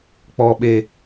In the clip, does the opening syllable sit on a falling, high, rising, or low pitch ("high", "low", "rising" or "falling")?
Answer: low